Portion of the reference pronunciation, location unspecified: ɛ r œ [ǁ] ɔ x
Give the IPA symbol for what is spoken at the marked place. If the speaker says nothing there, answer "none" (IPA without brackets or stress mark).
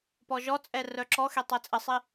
ǁ